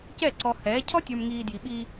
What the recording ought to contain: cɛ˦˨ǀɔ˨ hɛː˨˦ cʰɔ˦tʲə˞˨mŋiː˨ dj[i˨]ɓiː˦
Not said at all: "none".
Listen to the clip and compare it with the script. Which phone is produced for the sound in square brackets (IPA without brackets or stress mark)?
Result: i˨